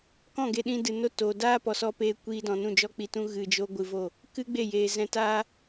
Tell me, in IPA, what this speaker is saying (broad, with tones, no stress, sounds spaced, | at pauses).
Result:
k ɔ̃˦˨ ɡ e˧ ɗ ĩ˧ d ɨ˨ n o˧ t oː˨ d aː˦ p ɔ˨ s ɔ˧ p eː˧ kʷ iː˧ d ɔ̃˨ n ũ˦˨ d͡ʒ ɔ˦ k͡p i˧ t ũ˦ ɣ ɨ˧ d͡ʒ o˦ ɡʷ ɨ˧ v o˦˨ | k ɨ˦ ɡ͡b e˦˨ j eː˨ z ɛ̃˧ t aː˦